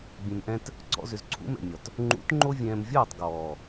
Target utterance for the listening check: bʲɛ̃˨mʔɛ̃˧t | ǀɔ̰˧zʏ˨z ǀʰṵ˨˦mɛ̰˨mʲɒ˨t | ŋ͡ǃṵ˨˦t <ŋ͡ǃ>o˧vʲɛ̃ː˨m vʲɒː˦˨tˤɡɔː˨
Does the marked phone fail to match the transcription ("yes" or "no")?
no